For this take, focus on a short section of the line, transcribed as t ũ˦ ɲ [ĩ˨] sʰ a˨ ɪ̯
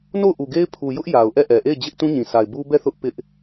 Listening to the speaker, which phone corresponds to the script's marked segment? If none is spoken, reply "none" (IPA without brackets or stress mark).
ĩ˨